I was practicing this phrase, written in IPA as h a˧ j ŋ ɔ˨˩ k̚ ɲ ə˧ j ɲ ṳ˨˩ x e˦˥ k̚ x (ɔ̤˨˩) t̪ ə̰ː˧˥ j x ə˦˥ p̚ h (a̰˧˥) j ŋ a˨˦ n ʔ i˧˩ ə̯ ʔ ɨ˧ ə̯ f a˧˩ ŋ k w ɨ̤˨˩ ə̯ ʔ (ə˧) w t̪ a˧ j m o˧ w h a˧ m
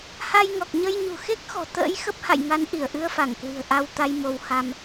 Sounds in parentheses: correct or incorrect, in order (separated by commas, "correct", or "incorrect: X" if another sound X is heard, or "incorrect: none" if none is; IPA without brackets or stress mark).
correct, incorrect: a̰˧˨, incorrect: a˧